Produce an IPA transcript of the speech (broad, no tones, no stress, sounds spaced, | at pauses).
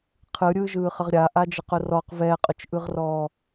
qʰ ɯ ɾʲ ɯː ʒ ɯː χ ə ʁ ɾʲ a ʔ a d͡ʒ ə q ʊ r ɔ q v ɛː qʼ ʊ t͡ʃ ʔ ɯ ʁ r ɔː